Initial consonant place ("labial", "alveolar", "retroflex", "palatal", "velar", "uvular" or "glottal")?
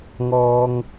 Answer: velar